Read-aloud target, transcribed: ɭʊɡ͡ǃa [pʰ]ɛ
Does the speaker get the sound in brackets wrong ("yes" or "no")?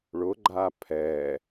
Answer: no